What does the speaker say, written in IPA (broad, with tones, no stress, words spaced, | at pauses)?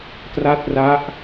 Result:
tra˦˥t̚ra˦˥ʔ